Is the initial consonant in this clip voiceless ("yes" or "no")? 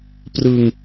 yes